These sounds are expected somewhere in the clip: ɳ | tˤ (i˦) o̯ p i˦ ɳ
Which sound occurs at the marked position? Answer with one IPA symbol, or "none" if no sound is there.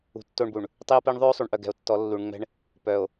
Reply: i˦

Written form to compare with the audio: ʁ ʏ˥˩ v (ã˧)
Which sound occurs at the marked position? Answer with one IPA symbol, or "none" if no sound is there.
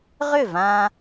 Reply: ã˧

